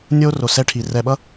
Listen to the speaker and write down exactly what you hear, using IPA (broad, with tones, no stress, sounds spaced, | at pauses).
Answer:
nʲ o˦ r o˨ s ɛ˦ ʈʰ i˨ r ɛ˨ ɓ ʌ˦